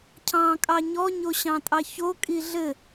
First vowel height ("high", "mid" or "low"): low